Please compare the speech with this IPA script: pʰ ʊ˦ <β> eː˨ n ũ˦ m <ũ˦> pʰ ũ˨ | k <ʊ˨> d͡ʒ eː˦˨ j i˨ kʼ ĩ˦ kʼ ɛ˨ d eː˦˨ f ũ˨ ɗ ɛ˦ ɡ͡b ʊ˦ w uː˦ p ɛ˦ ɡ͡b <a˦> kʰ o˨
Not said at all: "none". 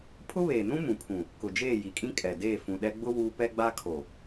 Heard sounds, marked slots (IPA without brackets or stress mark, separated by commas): β, ũ˨, ʊ˨, a˦